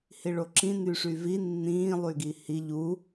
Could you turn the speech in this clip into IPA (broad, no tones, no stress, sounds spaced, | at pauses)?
h i ɭ o ǁ ĩ n y ʂ y v i nː ĩː lˠ y ɡ i h i ʎ u